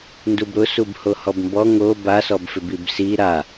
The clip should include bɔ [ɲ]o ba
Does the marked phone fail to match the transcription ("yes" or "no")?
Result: yes